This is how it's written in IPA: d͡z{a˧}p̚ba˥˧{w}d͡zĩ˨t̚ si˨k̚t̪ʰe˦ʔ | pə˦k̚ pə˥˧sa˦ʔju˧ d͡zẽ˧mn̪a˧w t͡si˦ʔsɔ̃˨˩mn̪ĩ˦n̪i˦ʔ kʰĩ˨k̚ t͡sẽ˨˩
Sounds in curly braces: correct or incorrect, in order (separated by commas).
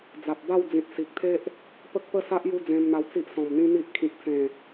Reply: incorrect, correct